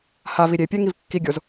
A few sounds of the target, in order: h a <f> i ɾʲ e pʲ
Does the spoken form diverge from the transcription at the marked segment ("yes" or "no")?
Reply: yes